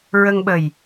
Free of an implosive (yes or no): no